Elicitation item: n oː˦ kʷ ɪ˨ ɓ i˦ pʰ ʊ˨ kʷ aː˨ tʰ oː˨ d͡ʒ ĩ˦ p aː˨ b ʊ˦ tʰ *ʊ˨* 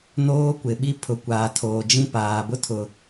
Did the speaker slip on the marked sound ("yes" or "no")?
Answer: no